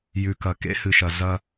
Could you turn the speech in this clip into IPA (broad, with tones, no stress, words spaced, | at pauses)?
jʉ˨kɐ˨ kḛ˦hɨ˨ʃɐ˨ zɐ˦